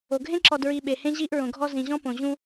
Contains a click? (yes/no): yes